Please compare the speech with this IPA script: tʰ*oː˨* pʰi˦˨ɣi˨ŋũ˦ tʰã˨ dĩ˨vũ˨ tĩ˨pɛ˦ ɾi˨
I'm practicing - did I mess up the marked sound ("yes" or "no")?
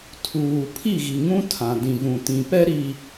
yes